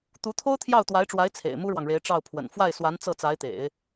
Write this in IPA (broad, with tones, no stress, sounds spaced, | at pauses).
t̪ u˧˥ t̪ʰ o˥ ʊ̯ t̪ʰ j ɑ˥˩ ʊ̯ t̪ w a˧˥ ɪ̯ ʈ͡ʂ w a˧˥ ɪ̯ t͡sʰ ḛ˨˩ ɪ̯ m u˥ ɻ w ɑ˨ ŋ ɻ e˧˥ ɪ̯ ʈ͡ʂ ɑ˥˩ ʊ̯ pʰ w ə̰˨˩ n f w a˥˩ ɪ̯ s w a˧˥ n t͡s ɤ˥˩ t͡s a˧˥ ɪ̯ t̪ ḛ˨˩˦ ɪ̯